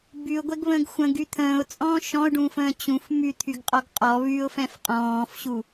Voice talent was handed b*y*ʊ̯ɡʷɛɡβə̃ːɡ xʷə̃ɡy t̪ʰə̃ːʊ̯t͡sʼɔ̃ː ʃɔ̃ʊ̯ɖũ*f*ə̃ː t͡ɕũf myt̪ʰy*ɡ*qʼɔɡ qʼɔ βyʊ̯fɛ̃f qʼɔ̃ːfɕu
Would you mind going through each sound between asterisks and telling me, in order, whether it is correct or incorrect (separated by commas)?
correct, correct, correct